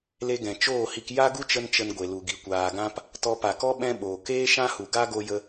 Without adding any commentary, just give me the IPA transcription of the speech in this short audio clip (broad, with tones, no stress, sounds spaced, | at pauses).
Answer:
l e˧ ɡ ɛ̃˨ t͡ʃ oː˦˨ h i˧ k j a˦ ɡ u˦ t͡ʃ ə˦ n t͡ʃ ə˧ n ɡʷ e˨ l u˨ ɡ i˨ kʷ aː˨ ɡ ã˧ p | t ɔ˧ p a˨ k ɔ˦ ɓ ɛ̃˦ ɓ oː˨ k eː˦ ʃ ã˦ h u˨ ɡ a˦ ɡ o˧ j ə˧